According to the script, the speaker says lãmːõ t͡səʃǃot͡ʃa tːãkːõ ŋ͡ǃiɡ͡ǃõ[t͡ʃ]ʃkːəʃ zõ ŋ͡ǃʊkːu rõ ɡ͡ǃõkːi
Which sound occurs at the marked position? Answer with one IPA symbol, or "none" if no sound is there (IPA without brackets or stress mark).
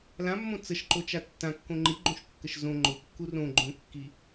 none